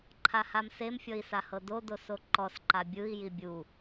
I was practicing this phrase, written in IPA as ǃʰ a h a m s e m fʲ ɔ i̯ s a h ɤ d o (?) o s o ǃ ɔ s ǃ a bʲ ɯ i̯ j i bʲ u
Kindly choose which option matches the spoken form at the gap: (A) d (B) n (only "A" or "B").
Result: A